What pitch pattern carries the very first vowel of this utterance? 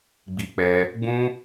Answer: high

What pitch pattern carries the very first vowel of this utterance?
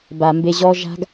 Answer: low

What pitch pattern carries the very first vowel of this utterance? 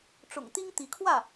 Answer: low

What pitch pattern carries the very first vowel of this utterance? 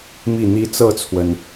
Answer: falling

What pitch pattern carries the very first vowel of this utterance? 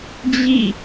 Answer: falling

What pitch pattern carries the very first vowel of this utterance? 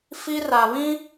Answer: high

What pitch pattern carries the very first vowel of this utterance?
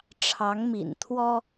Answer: rising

